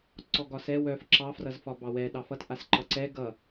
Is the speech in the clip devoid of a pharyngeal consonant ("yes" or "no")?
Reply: yes